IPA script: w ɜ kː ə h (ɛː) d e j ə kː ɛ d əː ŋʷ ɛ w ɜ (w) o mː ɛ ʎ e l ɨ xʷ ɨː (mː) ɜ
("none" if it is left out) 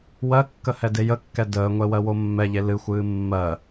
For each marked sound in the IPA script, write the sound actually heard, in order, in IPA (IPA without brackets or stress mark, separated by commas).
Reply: ɛ, w, mː